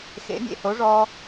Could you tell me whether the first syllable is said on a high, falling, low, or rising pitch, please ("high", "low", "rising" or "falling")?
rising